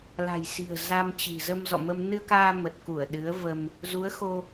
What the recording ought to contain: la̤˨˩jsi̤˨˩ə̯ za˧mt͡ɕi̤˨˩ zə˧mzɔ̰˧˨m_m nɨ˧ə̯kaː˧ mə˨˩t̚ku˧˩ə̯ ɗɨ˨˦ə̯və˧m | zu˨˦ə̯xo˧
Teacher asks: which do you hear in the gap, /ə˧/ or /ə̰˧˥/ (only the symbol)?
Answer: ə˧